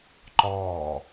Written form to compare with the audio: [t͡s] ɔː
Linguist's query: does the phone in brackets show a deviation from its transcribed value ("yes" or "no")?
yes